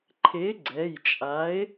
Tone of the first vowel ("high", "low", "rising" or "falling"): rising